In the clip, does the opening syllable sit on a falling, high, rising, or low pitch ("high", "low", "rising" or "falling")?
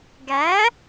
rising